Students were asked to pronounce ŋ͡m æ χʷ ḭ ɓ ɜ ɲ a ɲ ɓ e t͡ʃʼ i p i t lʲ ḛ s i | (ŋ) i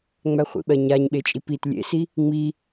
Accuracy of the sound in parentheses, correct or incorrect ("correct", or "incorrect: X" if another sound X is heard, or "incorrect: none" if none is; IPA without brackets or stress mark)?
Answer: incorrect: ŋ͡m